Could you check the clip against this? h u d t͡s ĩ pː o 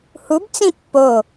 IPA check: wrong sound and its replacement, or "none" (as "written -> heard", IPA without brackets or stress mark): d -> b